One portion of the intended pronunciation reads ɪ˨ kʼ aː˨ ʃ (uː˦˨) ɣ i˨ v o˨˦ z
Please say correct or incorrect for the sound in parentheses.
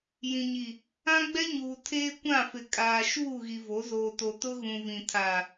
correct